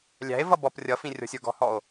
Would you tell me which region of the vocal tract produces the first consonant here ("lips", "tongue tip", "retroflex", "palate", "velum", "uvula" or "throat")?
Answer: tongue tip